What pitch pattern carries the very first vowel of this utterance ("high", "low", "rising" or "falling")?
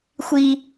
high